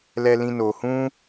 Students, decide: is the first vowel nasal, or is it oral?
oral